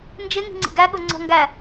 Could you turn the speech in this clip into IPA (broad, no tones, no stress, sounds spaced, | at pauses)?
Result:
n d͡ʒ ɪ ŋ i̤ ŋ͡ǀ ḭ ɡ æ ɠ ʊ ŋ͡ǀ ɔ̤ ŋ ɡ æ